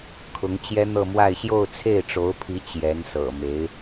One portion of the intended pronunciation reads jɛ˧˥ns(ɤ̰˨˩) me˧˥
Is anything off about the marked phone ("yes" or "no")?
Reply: no